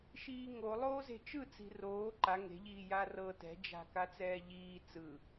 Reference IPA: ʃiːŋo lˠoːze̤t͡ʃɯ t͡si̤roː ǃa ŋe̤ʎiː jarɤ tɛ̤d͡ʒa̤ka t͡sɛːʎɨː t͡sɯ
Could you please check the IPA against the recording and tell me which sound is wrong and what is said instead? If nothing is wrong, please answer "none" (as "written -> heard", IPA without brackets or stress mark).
ɨː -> iː